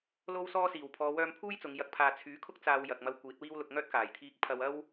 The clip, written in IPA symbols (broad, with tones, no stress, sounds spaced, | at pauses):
l o˧ w s ɔː˧ s iː˨˩ w pʰ ɔː˨˧ w œː˧ m pʰ uː˥ j t͡s ʊ˨˧ ŋ j ɐ˨˥ k̚ pʰ aː˨ t͡sʰ yː˨˥ kʰ ʊ˥ k̚ t͡s aː˧ w j ɐ˨ k̚ m ɐ˧ w kʷ iː˨˥ t̚ w iː˥ w l ʊ˧ k̚ ŋ œː˥ t̚ k aː˨˩ j t̪ʰ iː˧ k̚ pʰ ɐ˧ w ɐ˥ w